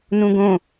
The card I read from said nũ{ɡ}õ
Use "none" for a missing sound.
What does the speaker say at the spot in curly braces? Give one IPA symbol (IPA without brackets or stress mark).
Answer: ɡ